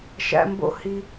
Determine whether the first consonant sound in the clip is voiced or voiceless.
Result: voiceless